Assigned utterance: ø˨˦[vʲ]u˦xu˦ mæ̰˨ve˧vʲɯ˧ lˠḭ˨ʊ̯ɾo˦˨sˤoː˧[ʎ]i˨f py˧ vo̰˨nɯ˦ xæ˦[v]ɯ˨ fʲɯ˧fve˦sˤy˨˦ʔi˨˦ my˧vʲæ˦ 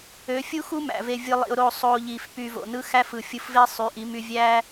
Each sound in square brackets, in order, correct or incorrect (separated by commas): incorrect, correct, incorrect